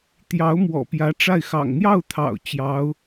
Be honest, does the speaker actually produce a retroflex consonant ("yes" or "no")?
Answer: yes